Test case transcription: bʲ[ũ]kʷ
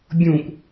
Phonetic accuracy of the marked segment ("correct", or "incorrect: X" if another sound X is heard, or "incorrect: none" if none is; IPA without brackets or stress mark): correct